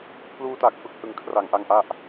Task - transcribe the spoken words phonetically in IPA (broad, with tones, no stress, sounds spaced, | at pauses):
pʰ l uː˧ t a˨˩ k̚ f ɯ˨˩ k̚ h ɯ˨˩ ŋ kʰ r a˨˩ ŋ ʔ a˥˩ ŋ ʔ a˥˩ ʔ